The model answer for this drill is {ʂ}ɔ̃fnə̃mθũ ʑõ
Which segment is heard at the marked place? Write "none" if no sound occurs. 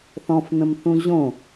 θ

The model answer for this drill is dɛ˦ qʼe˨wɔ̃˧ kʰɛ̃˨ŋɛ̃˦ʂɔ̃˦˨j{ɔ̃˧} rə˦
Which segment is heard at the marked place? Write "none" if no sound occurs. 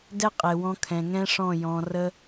ɔ̃˧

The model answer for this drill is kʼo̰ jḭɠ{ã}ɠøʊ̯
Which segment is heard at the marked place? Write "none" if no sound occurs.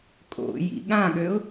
ã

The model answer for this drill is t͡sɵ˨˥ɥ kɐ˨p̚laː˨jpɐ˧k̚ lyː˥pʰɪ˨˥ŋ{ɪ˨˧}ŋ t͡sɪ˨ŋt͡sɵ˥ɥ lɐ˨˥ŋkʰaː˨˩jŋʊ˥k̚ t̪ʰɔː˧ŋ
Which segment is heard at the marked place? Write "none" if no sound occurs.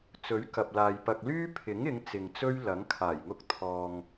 ɪ˨˧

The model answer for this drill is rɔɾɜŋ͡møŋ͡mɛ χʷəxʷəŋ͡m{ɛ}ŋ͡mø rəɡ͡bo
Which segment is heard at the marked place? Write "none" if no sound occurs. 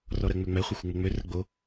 ɘ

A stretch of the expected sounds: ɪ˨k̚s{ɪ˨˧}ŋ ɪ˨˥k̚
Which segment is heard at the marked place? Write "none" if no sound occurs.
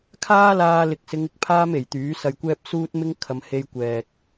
ɪ˨˧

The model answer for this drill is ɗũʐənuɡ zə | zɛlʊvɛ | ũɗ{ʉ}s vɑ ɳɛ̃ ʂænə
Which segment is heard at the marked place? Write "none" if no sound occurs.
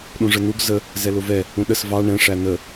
ə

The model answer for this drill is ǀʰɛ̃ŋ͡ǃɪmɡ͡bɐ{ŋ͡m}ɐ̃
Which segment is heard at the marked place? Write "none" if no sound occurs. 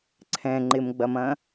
m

